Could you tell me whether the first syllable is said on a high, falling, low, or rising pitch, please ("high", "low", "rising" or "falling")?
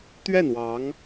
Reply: falling